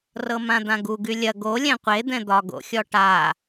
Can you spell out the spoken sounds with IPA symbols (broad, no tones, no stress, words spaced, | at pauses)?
rɤmãd̪ãɡu ɡylʲɐ ɡo lʲɛ̃qʷe d̪ɛ̃d̪ɒ ɡo̰xʲɔʈa